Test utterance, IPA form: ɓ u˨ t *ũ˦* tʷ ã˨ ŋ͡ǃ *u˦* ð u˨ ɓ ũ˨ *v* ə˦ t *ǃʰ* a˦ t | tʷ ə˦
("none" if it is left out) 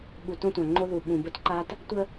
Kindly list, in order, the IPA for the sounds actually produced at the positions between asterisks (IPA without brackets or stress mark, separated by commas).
õ˦, o˦, b, ǃ